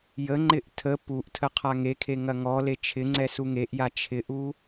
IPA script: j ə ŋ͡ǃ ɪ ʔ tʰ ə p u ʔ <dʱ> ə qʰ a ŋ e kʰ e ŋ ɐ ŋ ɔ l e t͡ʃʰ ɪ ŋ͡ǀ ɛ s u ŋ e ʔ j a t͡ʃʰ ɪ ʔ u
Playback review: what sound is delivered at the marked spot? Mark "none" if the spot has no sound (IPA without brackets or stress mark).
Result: tʰ